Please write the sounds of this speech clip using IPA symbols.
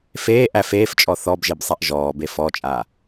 f eː ʔ æ f eː f t͡ʃʼ ɔ θ ɔ b ʒ e b sˤ a ʔ ʒ ɔː b e f ɔ t͡ʃʼ a

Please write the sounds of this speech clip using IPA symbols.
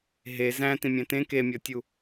ɦ e z æ̃ t ĩ mʲ æ̃ t ẽ k e mʲ ɒ tʲ u

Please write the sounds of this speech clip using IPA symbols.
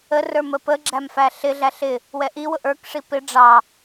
ə r ə˞ m ə p ə ɡ͡ǁ æ m f æ ɬ ɪ ɮ æ ɬ ɪ | w ɛ ʔ i w ʊ ʔ ə˞ k ʂ i p ɪ ɖ͡ʐ ɑ

